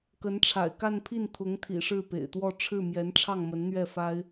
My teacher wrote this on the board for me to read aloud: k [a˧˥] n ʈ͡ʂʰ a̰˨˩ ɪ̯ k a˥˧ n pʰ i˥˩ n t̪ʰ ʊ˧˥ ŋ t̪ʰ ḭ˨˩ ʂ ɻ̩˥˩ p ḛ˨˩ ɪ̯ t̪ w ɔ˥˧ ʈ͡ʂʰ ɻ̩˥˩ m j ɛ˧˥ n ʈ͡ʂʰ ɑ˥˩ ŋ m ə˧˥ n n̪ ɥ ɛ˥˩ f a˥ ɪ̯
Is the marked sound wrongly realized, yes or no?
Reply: yes